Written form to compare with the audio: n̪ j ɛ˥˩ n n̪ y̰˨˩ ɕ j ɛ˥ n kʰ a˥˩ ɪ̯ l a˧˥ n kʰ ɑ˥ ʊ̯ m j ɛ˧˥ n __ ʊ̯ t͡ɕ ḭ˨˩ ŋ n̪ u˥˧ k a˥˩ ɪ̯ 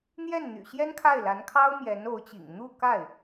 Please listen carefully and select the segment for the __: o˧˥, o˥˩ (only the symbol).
o˧˥